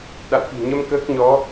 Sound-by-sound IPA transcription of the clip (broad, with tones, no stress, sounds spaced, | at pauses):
ɗ a̰˧˨ w k i̤˨˩ ɲ ə˧ m k əː˦˥ k̚ ɲ ɔ˨˦